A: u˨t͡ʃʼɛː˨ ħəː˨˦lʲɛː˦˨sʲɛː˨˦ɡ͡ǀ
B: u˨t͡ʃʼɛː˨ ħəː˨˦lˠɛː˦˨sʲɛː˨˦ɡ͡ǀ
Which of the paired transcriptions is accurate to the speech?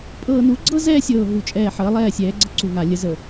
B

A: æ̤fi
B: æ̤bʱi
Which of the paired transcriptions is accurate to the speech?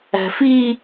A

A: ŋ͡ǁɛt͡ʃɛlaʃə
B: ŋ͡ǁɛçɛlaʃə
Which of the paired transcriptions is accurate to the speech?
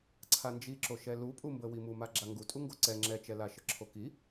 A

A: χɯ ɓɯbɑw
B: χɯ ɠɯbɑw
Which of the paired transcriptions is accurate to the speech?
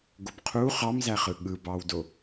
B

